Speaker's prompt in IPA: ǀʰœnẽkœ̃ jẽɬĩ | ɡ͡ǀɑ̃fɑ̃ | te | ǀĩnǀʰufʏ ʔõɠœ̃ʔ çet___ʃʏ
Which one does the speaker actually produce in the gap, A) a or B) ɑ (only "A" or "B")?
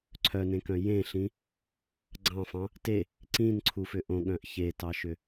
B